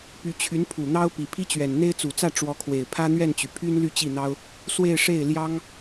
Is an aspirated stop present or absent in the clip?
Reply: present